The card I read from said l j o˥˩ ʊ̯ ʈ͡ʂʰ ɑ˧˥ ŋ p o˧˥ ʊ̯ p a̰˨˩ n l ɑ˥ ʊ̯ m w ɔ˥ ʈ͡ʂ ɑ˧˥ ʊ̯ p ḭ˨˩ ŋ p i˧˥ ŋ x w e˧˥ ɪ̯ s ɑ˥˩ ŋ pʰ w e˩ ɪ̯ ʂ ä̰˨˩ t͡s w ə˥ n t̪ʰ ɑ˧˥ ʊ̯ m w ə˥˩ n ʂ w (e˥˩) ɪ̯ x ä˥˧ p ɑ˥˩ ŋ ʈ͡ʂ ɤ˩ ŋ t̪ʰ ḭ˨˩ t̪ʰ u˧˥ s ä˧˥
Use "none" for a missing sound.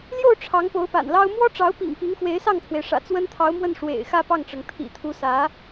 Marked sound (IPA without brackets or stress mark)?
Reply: ḛ˨˩